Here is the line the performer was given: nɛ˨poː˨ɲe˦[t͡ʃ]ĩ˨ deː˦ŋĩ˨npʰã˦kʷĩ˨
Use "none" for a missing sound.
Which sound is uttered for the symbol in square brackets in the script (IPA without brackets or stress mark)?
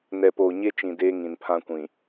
t͡ʃ